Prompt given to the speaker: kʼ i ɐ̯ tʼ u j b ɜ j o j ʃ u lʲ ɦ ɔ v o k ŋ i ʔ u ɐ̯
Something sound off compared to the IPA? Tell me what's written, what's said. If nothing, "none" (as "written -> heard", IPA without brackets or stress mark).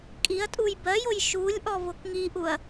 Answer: ɦ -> ʔ